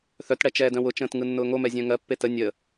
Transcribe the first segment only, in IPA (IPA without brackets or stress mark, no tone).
θ